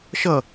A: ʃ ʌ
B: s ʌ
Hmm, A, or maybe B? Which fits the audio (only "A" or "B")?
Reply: A